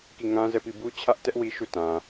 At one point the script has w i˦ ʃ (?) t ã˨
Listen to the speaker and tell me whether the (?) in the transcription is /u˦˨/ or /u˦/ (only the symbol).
u˦˨